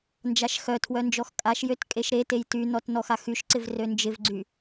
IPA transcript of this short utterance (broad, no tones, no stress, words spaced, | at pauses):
nd͡ʒaʃxœtʰwœ nd͡ʒɔxkʼaʃjøt kʼeʃɾetej tynɔt nɔxaxyʃǀɪv rønd͡ʒɪvɡ͡ǀy